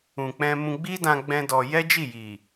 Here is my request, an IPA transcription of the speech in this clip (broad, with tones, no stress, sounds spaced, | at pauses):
ũ˨ k͡p ɛ̃˧ m ũ˧ ɡ͡b i˦ d ã˧ ɡ͡b ɛ̃˦ d ɔ˧ j ɛ˦ d͡ʒ i˦˨ j i˨